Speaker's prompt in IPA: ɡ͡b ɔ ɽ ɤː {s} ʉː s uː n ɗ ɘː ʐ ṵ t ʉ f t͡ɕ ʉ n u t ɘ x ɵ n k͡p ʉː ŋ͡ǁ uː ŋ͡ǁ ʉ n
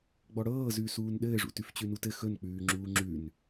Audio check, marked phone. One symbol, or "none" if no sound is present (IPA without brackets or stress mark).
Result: z